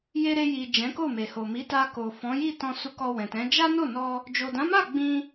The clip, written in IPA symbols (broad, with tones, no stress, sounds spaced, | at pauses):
j e˧ ɾ e˧ j i˨ d͡ʒ ɛ̃˨˦ k o˦˨ m e˨ h o˨ m i˨˦ t a˧ k o˨ f ɔ̃˨˦ j i˦˨ t ɔ̃˧ s u˧ k ɔ˧ w ɛ̃˨ t ɛ̃˨˦ d͡ʒ a˦ n o˦˨ n ɔ˧ | d͡ʒ o˨ d ã˨˦ m a˦˨ ɡ͡b ĩ˧